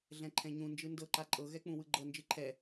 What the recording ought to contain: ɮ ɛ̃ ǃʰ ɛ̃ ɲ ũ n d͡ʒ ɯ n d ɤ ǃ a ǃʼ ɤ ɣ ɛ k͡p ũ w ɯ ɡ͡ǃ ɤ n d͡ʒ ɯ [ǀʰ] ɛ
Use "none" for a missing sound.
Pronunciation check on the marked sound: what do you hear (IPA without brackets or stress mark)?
ǃʰ